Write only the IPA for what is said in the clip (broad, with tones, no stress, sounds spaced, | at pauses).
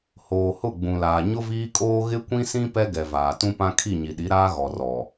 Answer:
h oː˨ h ʊ˦˨ ɡ͡b ũ˨ l aː˨ ɲ ʊ˦ v iː˦ kʼ oː˦ ɣ ɪ˦ kʷ ĩ˦ s ĩ˦ p ɛ˦ ɡ ɛ˨ v aː˨ t ũ˦ p ã˦ kʰ i˦˨ ɲ i˨ ɗ i˨˦ ɾ aː˦ ɣ ɔ˨ r ɔ˨